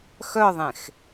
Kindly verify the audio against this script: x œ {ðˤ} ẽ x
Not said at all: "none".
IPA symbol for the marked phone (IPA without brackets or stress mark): ðˤ